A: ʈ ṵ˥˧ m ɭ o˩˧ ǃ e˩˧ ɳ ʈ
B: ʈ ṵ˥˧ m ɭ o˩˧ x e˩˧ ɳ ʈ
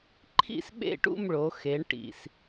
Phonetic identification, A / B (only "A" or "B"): B